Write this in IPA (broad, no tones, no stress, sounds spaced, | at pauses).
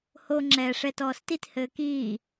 h o ŋ͡ǁ ɛː ʂ ɛ t ɔː s t i t h ɘː k iː